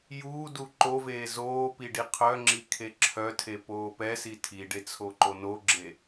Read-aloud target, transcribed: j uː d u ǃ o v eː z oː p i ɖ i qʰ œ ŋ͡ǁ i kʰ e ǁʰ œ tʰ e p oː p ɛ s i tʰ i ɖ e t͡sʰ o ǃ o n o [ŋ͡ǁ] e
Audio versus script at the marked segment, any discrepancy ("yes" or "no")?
yes